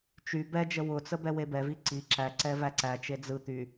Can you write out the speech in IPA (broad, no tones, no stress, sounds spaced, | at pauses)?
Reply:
t͡ʃ y b ɛ d͡ʒ ə w ʊ t͡s ə b ɛ w e b ɛ v i ǀ i ǁ æ ǀ ɛ v æ ǀ æ t͡ʃ e d͡z ɯ t̪ y